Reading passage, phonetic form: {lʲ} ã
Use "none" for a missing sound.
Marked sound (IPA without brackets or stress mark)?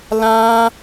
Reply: l